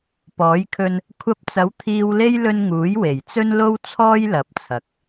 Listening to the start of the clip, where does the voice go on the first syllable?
rising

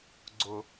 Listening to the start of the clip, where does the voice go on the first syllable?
low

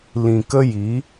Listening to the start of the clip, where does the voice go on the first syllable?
low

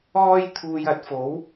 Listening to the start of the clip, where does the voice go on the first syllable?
high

